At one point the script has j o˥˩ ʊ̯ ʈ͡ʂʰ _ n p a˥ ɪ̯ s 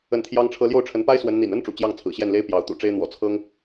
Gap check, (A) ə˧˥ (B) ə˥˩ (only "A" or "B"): A